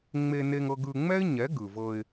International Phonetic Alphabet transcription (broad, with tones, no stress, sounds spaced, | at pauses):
ŋ͡m e˧ n e˧ ŋ ɤ˧ ɡ ɯ˧ ŋ͡m ɛ˦ ɪ̯ ɲ ɛ˨˦ ɡ ɯ˨ v ɤ˧ ɪ̯